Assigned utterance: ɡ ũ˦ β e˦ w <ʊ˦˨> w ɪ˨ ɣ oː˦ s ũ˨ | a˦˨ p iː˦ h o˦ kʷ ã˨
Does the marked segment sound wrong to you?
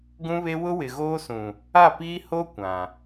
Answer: yes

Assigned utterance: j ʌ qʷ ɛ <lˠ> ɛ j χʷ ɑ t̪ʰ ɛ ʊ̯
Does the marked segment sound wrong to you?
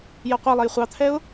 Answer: no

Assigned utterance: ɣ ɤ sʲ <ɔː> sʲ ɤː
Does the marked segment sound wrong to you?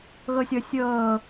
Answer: yes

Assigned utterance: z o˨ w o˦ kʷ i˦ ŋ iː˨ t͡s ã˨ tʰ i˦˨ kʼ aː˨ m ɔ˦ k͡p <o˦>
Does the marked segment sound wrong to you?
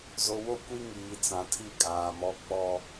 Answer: yes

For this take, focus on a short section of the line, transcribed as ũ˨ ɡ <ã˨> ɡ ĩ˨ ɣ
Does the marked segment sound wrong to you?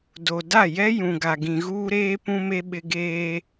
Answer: yes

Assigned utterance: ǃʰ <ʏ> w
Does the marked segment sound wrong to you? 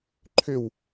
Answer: no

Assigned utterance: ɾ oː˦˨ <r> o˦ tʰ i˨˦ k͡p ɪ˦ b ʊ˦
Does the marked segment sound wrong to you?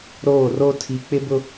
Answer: no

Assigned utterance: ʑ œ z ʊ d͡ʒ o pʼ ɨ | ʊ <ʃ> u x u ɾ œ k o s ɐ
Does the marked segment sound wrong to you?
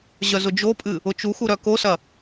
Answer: yes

